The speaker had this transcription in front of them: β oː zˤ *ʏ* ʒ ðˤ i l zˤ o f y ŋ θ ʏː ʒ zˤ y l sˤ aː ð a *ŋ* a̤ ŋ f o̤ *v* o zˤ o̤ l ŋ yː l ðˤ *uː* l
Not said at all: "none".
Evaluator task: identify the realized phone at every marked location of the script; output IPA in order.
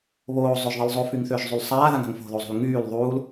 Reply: ʏ, ŋ, ð, uː

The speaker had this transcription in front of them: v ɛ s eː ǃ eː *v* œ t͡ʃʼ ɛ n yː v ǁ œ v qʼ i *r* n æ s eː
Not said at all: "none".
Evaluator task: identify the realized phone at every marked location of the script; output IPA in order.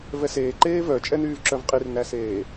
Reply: v, r

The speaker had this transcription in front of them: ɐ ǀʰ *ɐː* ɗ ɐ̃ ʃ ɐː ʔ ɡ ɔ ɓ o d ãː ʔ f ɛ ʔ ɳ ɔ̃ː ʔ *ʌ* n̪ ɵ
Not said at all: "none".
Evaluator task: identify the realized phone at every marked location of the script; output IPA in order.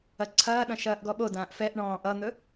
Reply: ɐː, ʌ

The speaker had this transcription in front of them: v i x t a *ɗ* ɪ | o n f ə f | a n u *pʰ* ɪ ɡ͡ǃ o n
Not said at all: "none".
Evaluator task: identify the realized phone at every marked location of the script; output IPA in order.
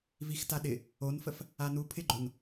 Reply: ɗ, pʰ

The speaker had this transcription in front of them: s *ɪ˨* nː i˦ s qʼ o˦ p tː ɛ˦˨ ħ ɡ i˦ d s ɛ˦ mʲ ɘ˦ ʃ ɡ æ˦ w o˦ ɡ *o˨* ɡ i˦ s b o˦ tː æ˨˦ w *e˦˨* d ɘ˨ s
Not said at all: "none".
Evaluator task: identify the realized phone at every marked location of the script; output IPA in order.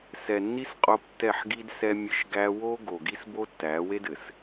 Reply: ɛ˨, o˨, e˦

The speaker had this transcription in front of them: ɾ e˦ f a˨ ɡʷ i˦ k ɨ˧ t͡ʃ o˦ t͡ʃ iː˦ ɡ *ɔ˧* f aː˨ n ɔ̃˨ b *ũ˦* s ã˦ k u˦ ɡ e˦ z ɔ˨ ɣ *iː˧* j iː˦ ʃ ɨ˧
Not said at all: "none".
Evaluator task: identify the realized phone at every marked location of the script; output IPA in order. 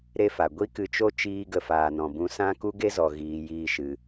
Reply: ə˧, ũ˧, iː˧

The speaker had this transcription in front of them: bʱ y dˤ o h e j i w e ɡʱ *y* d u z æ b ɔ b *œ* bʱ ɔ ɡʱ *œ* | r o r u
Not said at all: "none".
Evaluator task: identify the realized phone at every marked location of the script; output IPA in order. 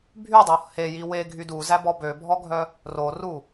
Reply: y, ø, œ

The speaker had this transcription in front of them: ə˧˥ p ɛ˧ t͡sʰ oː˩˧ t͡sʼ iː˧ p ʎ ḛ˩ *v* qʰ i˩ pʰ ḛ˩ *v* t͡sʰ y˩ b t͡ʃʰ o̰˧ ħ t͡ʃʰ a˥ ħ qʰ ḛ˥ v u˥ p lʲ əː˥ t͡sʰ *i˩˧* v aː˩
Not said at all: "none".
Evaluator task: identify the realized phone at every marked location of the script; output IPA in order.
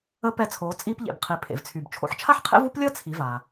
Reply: b, v, i˩˧

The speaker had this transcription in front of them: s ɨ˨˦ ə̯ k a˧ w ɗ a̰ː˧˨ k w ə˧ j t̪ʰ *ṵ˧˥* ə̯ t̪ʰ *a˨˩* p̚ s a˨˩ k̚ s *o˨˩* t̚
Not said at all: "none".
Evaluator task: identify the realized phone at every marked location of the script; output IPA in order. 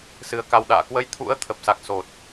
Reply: ṵ˧˥, ə˨˩, o˨˩

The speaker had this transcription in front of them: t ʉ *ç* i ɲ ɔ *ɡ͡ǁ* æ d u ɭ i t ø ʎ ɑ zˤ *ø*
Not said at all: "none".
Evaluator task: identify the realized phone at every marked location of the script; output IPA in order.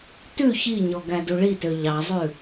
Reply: ç, ɡ, ʉ

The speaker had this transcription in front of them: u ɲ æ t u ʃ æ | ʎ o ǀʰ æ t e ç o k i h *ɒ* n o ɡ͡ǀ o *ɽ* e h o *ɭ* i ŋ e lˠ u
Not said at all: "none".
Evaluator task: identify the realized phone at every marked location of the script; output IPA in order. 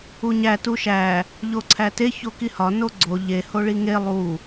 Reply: ɒ, ʎ, ɭ

